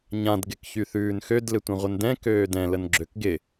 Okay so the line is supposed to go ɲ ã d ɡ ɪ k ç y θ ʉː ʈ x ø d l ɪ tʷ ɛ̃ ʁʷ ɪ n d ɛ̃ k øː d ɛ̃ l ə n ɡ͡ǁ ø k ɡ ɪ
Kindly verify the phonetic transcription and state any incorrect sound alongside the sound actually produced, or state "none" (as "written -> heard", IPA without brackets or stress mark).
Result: ʈ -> n